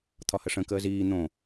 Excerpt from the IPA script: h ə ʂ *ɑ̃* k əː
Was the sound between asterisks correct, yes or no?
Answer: no